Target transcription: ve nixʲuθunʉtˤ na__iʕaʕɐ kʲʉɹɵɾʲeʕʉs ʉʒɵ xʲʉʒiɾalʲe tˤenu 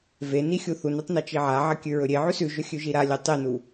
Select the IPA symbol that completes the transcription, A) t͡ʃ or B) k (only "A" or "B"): A